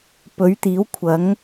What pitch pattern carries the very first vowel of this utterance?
rising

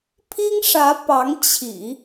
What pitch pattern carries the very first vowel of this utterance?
high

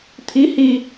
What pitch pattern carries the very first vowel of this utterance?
rising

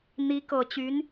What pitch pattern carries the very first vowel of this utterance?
rising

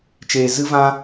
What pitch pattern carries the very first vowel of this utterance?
low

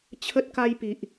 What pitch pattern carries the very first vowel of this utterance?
high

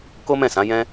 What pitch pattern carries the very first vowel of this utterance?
high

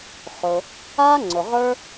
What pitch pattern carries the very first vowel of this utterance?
low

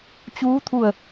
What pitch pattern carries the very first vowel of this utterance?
rising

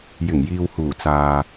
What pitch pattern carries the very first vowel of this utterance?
low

